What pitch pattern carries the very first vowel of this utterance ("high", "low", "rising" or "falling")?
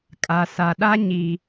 low